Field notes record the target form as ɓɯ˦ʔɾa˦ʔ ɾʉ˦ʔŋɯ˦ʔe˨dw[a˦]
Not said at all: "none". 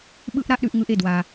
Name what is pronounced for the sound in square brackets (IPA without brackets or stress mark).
a˦